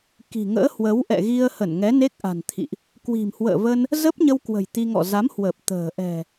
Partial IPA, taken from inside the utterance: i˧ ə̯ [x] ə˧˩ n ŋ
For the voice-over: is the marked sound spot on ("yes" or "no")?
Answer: no